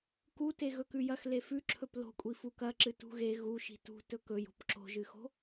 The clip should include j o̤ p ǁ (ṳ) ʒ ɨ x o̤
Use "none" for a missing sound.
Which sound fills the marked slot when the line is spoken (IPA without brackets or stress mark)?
o̤